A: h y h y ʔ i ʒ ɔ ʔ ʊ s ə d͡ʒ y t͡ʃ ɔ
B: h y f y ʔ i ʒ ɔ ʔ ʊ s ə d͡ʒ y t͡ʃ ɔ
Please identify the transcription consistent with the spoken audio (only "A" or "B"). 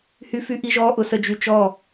B